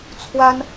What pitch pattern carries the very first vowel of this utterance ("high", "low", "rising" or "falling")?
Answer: high